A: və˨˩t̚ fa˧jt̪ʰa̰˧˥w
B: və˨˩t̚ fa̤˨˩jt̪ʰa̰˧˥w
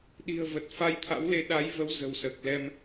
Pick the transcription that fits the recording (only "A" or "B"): A